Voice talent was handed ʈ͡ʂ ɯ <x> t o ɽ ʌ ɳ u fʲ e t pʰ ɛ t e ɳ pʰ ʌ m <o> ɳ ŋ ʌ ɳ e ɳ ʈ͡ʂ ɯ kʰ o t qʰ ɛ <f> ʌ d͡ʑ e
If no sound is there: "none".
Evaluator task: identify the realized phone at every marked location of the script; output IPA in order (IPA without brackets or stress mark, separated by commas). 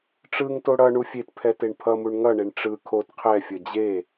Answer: ŋ, u, fʲ